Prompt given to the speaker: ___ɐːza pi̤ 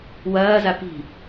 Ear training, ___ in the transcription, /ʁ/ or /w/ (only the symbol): w